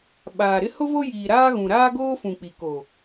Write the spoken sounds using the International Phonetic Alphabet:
ɓ aː˨ ɾ ɪ˦ h ʊ˦ v o˦ j iː˨ ɾ aː˦ ɣ ũ˨ ɾ aː˦ ɡ oː˦ f ũ˨ k͡p i˨ k o˨

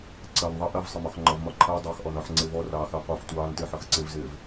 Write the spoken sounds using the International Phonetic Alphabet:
ǀ ɜ n ðˤ ɑ ʔ ɜ v sˤ ɪ m ɒ x ŋ͡ǃ ɒ v m ɒ ǃʰ əː dˤ ɑ x ʔ ɔ n ɒ ħ ŋ͡ǀ ɪː v ɔ r ɑː x əː qʷ ɜ f tʷ ɑː n t ɪː ħ ʌ x ǀ ɪ v z ɪː v

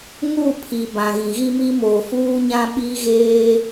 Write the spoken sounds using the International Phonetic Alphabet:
ŋ u˦˨ pʰ i˨ b ã˨ ɣ ĩ˨ ɣ i˦ m i˦ m o˨ f uː˦ ɲ ã˦ ɓ i˦ ɣ eː˦

